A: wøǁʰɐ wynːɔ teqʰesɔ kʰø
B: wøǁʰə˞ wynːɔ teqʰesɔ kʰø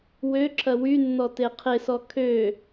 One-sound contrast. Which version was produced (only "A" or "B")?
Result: A